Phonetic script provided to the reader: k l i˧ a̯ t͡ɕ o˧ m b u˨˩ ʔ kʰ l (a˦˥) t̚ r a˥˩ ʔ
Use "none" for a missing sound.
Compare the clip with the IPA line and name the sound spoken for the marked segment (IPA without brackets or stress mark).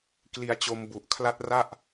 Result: a˦˥